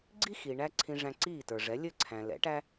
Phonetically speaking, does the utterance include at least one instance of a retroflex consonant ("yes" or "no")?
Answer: yes